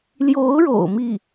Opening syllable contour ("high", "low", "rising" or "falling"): rising